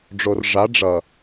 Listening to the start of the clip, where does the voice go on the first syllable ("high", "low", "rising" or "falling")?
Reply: low